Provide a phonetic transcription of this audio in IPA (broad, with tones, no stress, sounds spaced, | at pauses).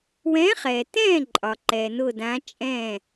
w ɛ̃ː˨˥ χ ɛː˩ t ɛ̃ː˥˩ ǃʼ ɒ˩ ǃ ɛ˩ n ʊ˧˩ d ã˨˥ t͡ʃʼ ɛ̃˥˩